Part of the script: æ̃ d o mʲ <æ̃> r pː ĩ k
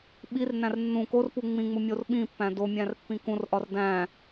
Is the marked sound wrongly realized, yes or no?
no